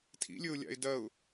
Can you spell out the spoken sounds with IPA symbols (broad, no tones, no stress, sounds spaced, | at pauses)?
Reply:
tʰ ḭ lʲ ɵ ʊ̯ lʲ a̰ ɪ̯ d ɐ ʊ̯